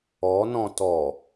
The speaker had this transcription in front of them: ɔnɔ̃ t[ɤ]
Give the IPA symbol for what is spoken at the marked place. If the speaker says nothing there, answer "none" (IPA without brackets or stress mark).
ɔ